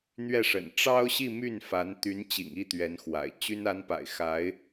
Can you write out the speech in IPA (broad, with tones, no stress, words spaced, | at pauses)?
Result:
n̪ɥɛ˥˩ʂə̰˨˩n ʈ͡ʂɑ˥ʊ̯ɕi˥˧my˥˩nfa˧˥n t̪y˧˥nt͡ɕḭ˨˩ŋi˥˩ t̪ɥɛ˧˥nxwa̰˨˩ɪ̯ t͡ɕy˥n a˧˥npa̰˨˩ɪ̯xa˧˥ɪ̯